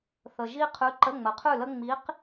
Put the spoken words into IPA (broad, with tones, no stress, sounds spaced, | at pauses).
θ ə˨ ʒ i˥ qʰ ʉ˧˥ ǃ ə˧˥˧ ŋ͡m ə˩˥ qʰ ʉ˥˨ l ə˥ ŋ͡m i˧˥ q